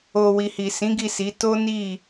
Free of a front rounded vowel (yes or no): yes